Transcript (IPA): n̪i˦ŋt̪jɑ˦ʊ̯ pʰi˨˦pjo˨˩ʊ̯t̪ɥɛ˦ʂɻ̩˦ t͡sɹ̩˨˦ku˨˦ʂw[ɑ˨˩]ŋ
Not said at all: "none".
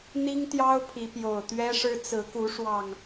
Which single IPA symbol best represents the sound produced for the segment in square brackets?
ɑ˨˩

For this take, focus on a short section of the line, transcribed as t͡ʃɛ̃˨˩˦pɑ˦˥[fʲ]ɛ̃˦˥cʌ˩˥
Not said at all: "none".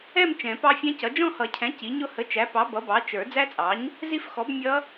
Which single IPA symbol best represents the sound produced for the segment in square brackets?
fʲ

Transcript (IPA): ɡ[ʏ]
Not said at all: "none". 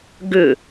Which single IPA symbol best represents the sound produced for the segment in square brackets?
ʏ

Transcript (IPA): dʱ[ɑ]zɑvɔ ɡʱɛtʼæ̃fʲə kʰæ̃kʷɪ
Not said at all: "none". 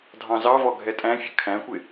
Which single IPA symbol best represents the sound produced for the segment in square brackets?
ɑ̃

